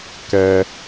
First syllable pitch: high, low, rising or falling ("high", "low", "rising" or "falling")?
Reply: low